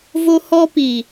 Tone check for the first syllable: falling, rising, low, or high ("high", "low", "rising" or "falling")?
high